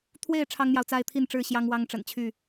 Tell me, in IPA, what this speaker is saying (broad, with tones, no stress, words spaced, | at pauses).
t̪ʰwe˥˨ɪ̯ ʈ͡ʂʰɑ˦ŋn̪jɑ˨ʊ̯t͡sa˦ɪ̯t̪ʰi˥˨n ʈ͡ʂɻ̩˥˨ɕjɑ˦ŋ wɑ˦ŋʈ͡ʂə̰˨˩nt͡ɕʰy˥˨